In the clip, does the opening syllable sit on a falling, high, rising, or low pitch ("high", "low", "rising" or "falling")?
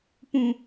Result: low